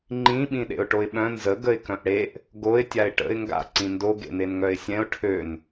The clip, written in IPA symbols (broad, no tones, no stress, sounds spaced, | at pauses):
ŋ͡ǃ ĩ ɓ ĩ ɗ ḛ ʊ̯ ʈ o ɪ̯ ɓ œ̃ n z ə ɡ ə ɪ̯ k œ̃ ʔ ɽ e ʔ | ɡ o ɪ̯ tʲ a ɪ̯ ʈ ə̰ ɪ̯ ŋ ɡ a̰ ǀ ĩ n d o ɡ ḛ n̪ e n ŋ œ ɪ̯ sʲ ɛ̃ ʊ̯ ʈʰ ø n